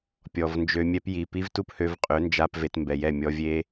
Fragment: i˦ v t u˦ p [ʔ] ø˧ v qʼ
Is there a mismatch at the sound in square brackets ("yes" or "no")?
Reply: yes